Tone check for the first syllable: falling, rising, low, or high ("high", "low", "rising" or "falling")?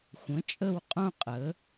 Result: rising